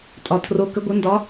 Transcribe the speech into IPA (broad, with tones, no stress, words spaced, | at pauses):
tʼɒ˩ tʰro˩˧ kə˩˧ɡʷɘ˩˧ndɒ˩˧